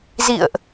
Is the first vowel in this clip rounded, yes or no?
no